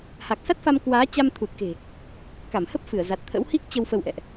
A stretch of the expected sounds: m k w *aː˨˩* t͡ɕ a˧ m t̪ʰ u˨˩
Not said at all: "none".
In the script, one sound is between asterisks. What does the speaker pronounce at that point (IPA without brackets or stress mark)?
aː˨˦